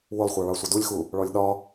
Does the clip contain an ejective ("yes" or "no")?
no